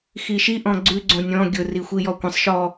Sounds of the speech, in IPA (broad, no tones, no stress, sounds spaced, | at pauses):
x i ʃ i ʔ ɔ̃ ɡ͡ǀ ʉ ɡ͡ǀ õ nʲ ɔ̃ ɡʲ ʊ r i xʷ i j ɔ kʷ ə̃ sˤ ʃ ɔ